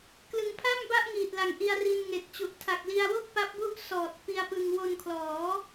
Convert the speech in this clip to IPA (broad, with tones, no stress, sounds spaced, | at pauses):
k l ɯ˩˦ ŋ pʰ a˥˩ m b a˥˩ ʔ ŋ iː˨˩ t̚ l a˨˩ ŋ ʔ i˧ a̯ r i˧ n ŋ e˨˩ k̚ t͡ɕ u˨˩ ʔ tʰ a˨˩ k̚ l i˧ a̯ w o˥˩ k̚ p a˦˥ p̚ b u˥˩ ʔ s ɔː˨˩ t̚ p i˧ a̯ p ɯ˧ ŋ w o˧ n kʰ l ɔː˩˦